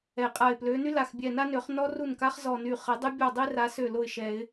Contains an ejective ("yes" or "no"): yes